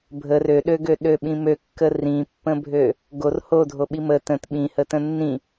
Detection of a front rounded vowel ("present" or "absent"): present